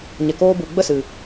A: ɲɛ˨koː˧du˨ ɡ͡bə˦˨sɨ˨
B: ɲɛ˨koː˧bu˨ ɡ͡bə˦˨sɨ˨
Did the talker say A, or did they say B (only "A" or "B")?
B